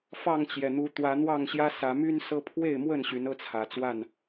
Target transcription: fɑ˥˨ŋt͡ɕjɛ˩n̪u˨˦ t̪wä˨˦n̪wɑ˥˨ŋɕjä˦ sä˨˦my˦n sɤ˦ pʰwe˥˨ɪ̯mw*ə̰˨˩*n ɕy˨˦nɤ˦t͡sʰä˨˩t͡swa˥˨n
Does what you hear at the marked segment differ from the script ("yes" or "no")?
yes